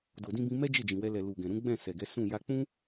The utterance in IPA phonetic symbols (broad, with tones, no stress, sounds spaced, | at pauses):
d o˨ d ĩ˧ b ĩ˧ m ɛ˦ d͡ʒ e˦˨ d͡ʒ ĩ˨ w ɛ˧ l ɛ˨ l u˨ ɡ ɛ̃˨ ɾ ũ˨˦ ɡ͡b ɛ̃˦˨ s ɛ˨ ɡ ɛ˨˦ s ũ˦˨ j a˧ k͡p ũ˦